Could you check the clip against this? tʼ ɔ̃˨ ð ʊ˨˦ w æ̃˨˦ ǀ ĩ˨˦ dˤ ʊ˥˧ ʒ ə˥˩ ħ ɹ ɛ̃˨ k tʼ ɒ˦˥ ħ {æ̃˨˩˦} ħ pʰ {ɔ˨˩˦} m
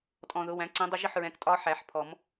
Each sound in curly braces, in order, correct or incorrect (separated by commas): incorrect, correct